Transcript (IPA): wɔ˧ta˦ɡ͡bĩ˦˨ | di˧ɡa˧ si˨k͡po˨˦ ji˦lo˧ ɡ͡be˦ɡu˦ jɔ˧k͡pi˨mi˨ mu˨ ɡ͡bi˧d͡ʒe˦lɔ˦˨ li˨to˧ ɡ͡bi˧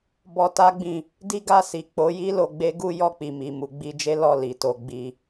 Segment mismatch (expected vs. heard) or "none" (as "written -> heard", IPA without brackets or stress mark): w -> b